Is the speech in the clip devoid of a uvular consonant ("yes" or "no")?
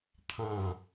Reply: yes